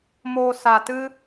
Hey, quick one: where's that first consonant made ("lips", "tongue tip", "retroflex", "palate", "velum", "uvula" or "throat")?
lips